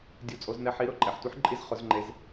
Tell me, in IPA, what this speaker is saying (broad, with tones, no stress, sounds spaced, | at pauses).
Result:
dʲ u˦˥ t͡sʼ o˦˥ z n ɛ˦˥ ħ i˦˥ ɾ ʊ˦˥ ǃʼ ɛ˨ ħ tʷ i˦˥ ħ ǃʼ i˦˥ z χ ʊ˦˥ z ŋ͡ǃ e˦˥ z